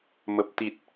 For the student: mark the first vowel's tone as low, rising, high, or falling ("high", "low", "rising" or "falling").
low